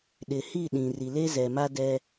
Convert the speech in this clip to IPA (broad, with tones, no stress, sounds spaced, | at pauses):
ɗ ɪ˨ h i˦˨ ɗ ĩ˨ r i˨ l e˦ z ɛ˨ m a˦ d ɛ˦